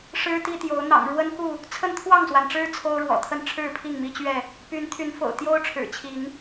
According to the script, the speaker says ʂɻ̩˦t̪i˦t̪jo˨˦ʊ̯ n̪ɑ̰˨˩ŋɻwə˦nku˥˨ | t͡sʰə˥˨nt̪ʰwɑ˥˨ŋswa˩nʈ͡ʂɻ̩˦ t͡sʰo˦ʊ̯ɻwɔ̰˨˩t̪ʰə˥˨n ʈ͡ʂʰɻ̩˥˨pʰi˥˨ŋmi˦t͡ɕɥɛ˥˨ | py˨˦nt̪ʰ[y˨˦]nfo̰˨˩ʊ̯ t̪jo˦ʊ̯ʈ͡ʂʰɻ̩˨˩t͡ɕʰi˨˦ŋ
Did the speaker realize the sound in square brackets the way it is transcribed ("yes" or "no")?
yes